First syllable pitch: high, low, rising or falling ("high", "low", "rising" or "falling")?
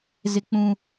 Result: high